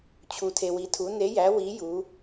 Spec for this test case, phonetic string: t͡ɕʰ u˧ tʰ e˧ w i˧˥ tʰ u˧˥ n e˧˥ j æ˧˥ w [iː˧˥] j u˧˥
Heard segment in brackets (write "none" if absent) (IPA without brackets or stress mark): i˧˥